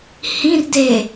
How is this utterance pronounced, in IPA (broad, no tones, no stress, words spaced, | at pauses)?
hĩr de